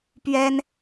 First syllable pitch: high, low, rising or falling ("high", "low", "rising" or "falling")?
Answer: high